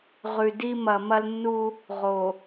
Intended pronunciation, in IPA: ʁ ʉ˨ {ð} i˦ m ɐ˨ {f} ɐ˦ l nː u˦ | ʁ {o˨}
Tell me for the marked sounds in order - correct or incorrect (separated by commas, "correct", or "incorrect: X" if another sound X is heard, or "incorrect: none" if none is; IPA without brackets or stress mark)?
incorrect: d, incorrect: m, correct